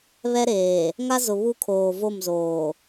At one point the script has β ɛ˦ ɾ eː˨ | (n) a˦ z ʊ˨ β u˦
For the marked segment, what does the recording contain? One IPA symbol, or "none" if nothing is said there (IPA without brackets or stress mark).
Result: ŋ